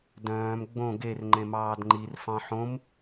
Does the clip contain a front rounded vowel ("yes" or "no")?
yes